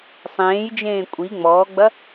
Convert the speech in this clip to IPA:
sˤẽːjd͡ʒẽː kʷʼi ŋ͡mɔːɡ͡bɐ

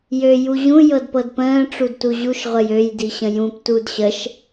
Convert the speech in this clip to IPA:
jø juʑũ jɤdpɤdpə̃ː ʈ͡ʂudtuʑuʃ ʁʷəjøj diɕə̃jũp tudɕəʃ

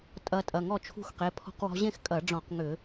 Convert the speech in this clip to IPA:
tʼɐ˧ tʼɐ˩˧˩ŋɔ˥˨t͡ʃʰṳ˦˥xqe˩˧˩ pʰɔ̤˧qwɔ̤˧ ʑẽ˥˨xkʼɐ˧˩˧ɖ͡ʐɔ̃˧˩˧q ŋʏ˧˩˧

